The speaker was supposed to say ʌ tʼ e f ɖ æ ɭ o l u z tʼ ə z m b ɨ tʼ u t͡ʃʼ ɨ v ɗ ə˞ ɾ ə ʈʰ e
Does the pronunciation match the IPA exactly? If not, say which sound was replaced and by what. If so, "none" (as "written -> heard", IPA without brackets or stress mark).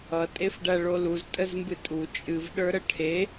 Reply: none